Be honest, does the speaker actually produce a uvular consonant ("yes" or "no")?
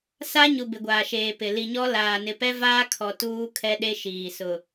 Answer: no